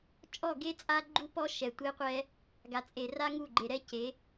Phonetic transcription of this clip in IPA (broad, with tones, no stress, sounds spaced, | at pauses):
t͡ʃʼ ɔ˦˨ ɡ e˦ t͡sʼ a˦ ɡ͡ǃ u˦ p ɔ˦ ʃ ɛ˨ tʷ e˦ qʷ ɛ˦ | ɡ a˨ t͡sʼ e˨ r a˦ ŋ u˦˨ ɡ͡ǃ e˨ ɾ ɛ˦ c e˨˦